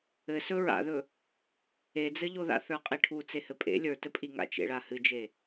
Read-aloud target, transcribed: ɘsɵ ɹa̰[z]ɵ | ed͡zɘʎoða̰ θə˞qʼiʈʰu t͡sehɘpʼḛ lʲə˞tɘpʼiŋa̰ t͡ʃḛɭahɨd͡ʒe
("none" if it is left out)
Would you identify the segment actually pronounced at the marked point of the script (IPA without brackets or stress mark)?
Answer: ð